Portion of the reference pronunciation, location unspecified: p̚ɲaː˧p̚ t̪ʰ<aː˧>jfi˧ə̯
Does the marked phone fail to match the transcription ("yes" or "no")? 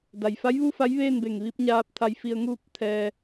yes